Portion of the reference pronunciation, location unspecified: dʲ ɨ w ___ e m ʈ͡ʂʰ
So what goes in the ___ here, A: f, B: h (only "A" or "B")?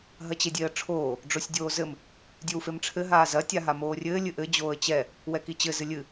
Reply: A